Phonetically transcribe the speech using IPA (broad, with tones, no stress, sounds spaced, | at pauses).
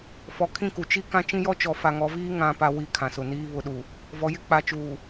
f ɔ˨ kʰ ĩ˦˨ k u˨ t͡ʃ i˦ k ã˦ t͡ʃ ĩ˦ j ɔ˦ t͡ʃ ɔ˨ f a˨ ŋ ɔ˨˦ v iː˦ ŋ ã˨ p a˨ w i˦˨ kʰ ã˨ s ʊ˨ n iː˦ β ʊ˨ ɗ u˨ | v ɔ˨ j ɪ˦ k͡p a˨ t͡ʃ uː˨